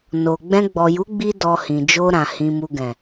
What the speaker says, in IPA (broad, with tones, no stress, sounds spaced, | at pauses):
n o˨ ɡ͡b ɛ̃˧ ɡ͡b ɔ˨ j u˨˦ ɡ͡b i˦ d ɔ˧ h ĩ˨ d͡ʒ o˧ ɾ ã˨ h ĩ˨ m u˨ ɡ ɛ̃˨